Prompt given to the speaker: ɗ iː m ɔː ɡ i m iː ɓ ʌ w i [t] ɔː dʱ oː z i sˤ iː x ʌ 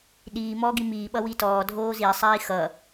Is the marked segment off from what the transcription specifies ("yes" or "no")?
no